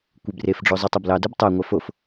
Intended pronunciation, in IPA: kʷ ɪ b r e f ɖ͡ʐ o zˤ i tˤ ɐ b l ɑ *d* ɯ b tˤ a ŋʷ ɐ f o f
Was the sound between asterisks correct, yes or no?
yes